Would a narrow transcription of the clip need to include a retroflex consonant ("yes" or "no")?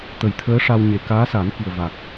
yes